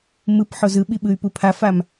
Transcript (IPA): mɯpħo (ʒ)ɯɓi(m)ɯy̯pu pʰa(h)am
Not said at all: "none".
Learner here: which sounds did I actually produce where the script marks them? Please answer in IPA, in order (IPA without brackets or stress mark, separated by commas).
z, ɓ, f